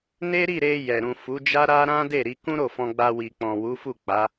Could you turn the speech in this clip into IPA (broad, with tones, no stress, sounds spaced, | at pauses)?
n e˦ ɾ i˦˨ ɾ e˧ j ɛ˨ ɾ ũ˨ f u˨˦ d͡ʒ a˦ ɾ a˦ ɾ ã˦ d e˦˨ ɾ i˧ k ũ˦ ɾ o˦˨ f ɔ̃˧ ɡ͡b a˧ w i˨ k͡p ɔ̃˨ w u˨˦ f u˦˨ k͡p a˨˦